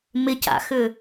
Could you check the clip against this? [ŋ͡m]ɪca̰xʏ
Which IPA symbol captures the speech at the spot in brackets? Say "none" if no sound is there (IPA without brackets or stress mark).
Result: m